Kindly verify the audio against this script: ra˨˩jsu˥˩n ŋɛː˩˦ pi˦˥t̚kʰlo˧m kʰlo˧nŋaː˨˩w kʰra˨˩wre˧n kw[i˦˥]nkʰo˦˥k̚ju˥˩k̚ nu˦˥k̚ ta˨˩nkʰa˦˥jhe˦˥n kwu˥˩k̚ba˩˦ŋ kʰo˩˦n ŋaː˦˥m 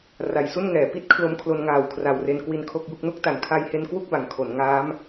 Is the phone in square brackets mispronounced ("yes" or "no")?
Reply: no